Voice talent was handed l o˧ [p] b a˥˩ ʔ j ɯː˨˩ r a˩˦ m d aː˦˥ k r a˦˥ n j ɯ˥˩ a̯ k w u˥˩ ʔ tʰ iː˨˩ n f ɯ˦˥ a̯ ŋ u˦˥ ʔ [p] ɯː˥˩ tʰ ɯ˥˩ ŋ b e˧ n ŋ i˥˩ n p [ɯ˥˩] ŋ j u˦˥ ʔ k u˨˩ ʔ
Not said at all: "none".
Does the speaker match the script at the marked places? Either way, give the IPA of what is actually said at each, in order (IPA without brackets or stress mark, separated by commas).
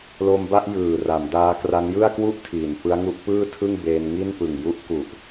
m, p, ɯ˨˩